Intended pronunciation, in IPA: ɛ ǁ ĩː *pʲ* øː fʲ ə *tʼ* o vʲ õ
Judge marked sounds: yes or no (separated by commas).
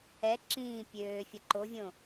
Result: yes, no